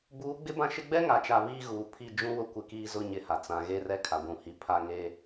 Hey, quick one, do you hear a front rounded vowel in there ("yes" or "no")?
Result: no